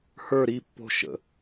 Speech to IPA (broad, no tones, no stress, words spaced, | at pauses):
hə˞ ɾi pːo̤ ʃə̰